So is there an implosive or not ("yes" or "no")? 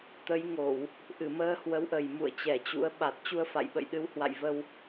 yes